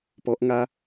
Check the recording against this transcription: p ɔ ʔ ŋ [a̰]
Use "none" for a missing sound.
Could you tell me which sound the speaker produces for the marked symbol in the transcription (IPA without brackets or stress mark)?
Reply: a